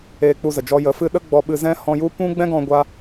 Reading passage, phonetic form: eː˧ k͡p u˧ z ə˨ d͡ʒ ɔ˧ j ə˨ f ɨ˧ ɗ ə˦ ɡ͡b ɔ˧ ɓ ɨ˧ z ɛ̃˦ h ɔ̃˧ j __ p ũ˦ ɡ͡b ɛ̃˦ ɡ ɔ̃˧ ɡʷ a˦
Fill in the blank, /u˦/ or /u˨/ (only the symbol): u˦